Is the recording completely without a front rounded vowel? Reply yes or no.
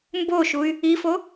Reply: no